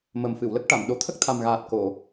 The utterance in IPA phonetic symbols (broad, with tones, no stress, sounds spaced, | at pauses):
m ə˨˩ m f ɨ˨˩˨ w l ə˦˥ k̚ ʈ a˨˩˨ m ɗ o˨˩˦ t̪ʰ ə˦˥ k̚ t̪ʰ a˨˩ m ɣ aː˨˩ t̚ k o˨˩˨